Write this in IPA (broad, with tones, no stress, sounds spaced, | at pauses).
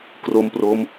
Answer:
k r o˦˥ m p r o˦˥ m